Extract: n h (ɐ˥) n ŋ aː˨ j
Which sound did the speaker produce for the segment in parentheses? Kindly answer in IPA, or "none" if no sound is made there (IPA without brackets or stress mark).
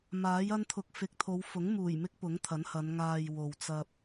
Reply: ɐ˨˧